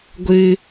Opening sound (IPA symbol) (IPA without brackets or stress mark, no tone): ɡʷ